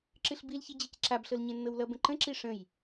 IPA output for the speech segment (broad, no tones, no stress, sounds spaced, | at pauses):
ǁ ɨ ɬ b i l ç i d͡ʑ i c ǁ a b ɬ ɤ l ɲ ẽ nː ɤ w l ʌ b ə̃ ǃ ə̃ ǁ i ʂ ə̃ j